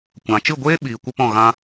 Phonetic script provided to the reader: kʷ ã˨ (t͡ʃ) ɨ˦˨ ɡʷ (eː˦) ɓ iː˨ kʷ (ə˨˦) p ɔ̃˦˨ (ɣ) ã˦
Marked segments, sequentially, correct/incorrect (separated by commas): correct, correct, incorrect, correct